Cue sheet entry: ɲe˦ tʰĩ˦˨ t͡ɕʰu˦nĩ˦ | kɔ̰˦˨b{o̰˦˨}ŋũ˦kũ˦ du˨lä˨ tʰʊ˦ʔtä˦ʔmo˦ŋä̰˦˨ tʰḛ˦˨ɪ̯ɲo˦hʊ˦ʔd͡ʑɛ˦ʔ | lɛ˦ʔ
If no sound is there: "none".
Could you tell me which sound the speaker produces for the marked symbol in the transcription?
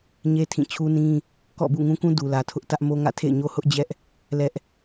ṵ˦˨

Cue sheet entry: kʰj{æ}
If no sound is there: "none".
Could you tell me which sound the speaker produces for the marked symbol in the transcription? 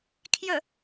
ə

